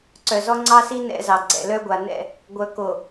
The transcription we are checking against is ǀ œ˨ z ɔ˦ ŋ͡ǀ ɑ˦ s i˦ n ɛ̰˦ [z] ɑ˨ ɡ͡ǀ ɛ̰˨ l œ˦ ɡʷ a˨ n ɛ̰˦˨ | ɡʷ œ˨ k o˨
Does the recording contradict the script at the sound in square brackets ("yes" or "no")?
no